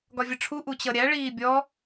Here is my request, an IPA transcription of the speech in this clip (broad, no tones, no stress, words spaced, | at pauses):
ɡɒvʲəʈ͡ʂʰu ʔut͡ɕʌɾʲæ ɭiːbʲɔ